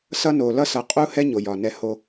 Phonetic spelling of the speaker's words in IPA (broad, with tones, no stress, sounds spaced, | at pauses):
s ʌ˦ n o˨ l ʌ˦ s ʌ˨ qʼ u˦ h ɛ˦ ɲ o˨ j ɒ˨ n ɛ˦ h o˦